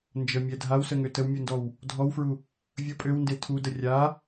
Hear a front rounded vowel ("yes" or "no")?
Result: yes